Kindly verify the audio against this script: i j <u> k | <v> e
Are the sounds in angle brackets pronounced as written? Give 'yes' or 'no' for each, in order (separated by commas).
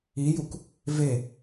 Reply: yes, yes